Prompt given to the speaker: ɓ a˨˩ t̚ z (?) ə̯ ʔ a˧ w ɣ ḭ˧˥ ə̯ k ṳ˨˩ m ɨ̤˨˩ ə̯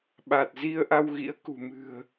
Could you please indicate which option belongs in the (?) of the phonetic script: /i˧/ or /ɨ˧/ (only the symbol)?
i˧